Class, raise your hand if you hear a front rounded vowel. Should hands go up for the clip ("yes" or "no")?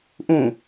no